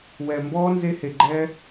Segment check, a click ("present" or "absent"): present